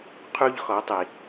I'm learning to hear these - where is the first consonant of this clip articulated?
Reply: uvula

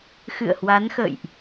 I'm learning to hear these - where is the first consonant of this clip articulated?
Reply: velum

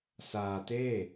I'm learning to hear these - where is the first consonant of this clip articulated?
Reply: tongue tip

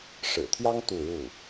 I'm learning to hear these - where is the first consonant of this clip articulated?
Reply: retroflex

